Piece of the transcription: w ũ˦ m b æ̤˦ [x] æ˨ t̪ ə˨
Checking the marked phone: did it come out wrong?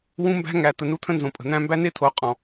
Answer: yes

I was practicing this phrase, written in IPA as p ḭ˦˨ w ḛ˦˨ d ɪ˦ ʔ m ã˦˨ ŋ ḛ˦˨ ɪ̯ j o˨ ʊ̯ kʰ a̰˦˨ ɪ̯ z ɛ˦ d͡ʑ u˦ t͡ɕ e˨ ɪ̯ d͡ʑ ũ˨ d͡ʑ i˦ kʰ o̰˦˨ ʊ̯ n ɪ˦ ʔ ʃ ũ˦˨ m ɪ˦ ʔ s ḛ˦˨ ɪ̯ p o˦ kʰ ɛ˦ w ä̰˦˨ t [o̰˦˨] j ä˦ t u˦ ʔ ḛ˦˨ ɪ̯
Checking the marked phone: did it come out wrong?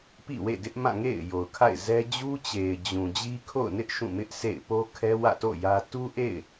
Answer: no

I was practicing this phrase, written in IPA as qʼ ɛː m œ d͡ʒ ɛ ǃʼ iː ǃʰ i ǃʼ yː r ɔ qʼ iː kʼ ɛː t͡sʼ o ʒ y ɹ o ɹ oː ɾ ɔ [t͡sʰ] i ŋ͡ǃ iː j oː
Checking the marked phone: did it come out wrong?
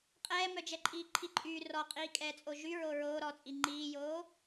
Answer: yes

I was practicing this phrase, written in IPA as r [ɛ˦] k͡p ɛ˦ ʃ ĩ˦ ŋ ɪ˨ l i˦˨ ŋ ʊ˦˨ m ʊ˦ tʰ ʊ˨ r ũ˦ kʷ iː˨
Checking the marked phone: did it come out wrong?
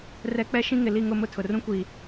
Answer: no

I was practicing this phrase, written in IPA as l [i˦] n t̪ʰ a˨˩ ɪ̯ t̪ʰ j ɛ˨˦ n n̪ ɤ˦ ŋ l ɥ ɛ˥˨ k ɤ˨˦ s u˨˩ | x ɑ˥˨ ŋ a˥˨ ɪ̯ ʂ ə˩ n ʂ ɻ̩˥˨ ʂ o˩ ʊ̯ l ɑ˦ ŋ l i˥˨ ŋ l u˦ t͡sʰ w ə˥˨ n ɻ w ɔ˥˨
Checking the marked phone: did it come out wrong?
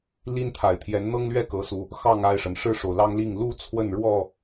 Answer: no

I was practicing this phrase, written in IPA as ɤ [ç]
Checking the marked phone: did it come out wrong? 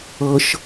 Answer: yes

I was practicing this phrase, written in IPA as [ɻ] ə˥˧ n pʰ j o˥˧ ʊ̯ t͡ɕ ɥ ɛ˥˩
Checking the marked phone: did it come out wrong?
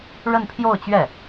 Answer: no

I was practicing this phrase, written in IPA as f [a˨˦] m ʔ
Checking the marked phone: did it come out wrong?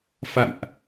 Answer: yes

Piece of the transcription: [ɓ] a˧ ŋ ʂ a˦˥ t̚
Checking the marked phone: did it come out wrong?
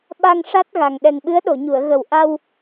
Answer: no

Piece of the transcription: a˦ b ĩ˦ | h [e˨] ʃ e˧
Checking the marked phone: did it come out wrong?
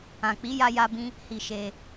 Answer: yes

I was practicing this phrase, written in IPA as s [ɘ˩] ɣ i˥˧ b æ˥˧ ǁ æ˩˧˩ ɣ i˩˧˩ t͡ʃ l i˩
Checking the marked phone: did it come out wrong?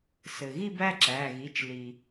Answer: no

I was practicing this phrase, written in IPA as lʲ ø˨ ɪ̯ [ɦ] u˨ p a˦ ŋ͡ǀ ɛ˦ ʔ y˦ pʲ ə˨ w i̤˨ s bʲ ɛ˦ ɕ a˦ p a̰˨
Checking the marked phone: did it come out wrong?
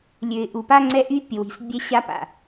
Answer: yes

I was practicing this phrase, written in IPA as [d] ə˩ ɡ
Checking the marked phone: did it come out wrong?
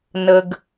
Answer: yes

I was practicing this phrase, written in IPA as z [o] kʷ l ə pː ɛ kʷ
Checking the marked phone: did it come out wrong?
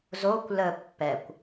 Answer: no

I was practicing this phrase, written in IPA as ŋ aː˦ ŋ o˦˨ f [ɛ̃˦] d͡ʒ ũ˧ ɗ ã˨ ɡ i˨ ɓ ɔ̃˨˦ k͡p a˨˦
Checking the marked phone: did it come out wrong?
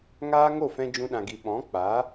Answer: yes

